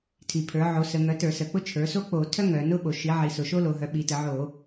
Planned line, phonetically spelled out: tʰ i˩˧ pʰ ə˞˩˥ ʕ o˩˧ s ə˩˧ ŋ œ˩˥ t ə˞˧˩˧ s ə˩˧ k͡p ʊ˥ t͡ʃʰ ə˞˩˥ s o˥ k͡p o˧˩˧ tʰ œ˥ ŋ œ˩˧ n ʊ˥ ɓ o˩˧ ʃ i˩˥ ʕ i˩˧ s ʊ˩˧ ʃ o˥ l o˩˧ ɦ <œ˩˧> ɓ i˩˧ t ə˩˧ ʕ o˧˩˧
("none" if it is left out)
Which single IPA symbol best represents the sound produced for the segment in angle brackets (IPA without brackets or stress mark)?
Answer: œ˩˥